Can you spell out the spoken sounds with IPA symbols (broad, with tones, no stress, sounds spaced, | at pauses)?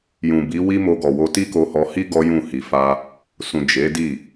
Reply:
j ũ˨ b i˨˦ w i˦ m o˧ ɡ ɔ˨ w o˧ t i˦ k o˧ h ɔ˧ h i˦ ɡ ɔ˦ j ũ˦˨ h i˧ f a˦ | s ũ˨ d͡ʒ e˨˦ d i˦˨